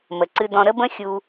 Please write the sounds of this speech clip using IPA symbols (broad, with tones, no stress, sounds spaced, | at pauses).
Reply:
m ə˨ ǀ ɨ˧ d ɔ̃˧ ɾ ə˦ b ə̃˦ xʲ u˧